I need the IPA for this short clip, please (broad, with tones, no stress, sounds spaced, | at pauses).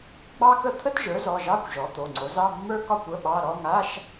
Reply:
ɡ͡b ɑ˥ k ə˥˧ t̪ʰ ə˥ t ʒ ə˞˩˥ z ɔ˩˧˩ ʒ ɑ˧˥˧ kʷ ʒ ɔ˩˥ t̪ o˩˧˩ ŋ͡ǀ o˩˥ z ɑ˧˥˧ mː ə˞˥ k ɒ˥˧ kʷ ə˧˥˧ ɓ ɑ˧˥˧ ɾ ɔ˧˥˧ ŋ a˧˥˧ ʃ